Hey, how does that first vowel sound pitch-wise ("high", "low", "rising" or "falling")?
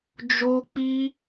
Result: high